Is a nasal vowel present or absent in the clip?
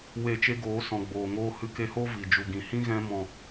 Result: present